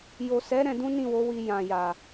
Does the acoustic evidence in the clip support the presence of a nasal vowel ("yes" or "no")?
yes